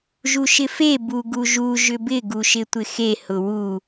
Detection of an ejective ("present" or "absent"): absent